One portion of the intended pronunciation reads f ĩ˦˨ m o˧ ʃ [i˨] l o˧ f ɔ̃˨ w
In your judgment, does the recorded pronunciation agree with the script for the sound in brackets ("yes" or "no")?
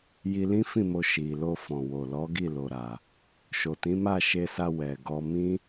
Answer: yes